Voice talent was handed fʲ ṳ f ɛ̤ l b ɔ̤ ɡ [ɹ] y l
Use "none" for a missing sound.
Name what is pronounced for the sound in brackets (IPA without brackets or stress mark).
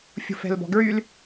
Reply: ɹ